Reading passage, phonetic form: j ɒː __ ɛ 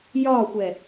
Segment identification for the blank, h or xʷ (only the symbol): xʷ